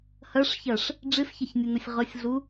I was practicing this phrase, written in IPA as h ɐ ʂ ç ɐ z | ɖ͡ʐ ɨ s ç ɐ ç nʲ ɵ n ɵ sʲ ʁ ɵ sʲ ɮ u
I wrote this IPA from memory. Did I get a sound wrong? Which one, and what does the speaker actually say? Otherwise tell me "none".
z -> ʂ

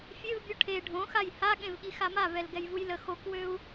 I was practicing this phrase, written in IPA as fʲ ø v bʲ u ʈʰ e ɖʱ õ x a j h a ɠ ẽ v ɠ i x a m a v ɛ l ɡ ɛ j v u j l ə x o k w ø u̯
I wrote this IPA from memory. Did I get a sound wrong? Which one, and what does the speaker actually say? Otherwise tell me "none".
none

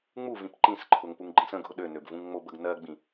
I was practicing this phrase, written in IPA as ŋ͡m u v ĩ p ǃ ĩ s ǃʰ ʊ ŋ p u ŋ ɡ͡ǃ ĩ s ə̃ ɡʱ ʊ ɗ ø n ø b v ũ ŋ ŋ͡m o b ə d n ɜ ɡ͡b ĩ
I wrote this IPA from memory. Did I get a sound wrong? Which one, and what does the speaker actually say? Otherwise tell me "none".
d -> ɡ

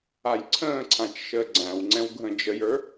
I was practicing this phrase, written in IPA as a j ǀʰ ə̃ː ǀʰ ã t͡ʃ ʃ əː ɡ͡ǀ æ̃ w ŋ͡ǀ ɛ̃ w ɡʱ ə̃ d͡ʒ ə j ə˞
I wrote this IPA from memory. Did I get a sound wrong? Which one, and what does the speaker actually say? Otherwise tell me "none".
none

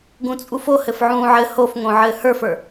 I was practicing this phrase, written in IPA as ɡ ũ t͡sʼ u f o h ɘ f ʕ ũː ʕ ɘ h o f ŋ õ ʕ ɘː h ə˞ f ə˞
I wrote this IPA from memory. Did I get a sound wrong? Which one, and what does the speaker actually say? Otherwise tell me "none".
none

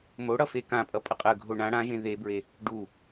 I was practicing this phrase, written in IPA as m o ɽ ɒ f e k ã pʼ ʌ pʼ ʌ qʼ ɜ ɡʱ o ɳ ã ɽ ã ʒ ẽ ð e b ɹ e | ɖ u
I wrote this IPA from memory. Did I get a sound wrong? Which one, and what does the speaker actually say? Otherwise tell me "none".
ɒ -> ʌ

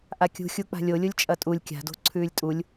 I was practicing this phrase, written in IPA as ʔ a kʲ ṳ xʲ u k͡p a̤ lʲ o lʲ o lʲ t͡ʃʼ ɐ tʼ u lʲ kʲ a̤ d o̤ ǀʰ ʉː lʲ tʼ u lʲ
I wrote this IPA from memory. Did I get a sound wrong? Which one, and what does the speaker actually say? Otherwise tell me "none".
none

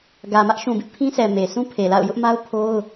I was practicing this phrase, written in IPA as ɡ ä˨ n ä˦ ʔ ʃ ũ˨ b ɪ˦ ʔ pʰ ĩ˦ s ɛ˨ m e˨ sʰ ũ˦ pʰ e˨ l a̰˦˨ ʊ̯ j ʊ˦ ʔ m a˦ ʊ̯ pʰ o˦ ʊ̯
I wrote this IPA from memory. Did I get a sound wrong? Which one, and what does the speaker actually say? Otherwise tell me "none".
n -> m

